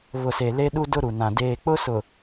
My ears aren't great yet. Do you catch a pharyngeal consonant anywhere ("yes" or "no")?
no